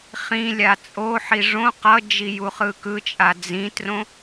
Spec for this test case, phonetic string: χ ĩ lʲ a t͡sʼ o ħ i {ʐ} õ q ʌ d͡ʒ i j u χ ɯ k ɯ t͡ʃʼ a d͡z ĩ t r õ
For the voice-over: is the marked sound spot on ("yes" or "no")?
yes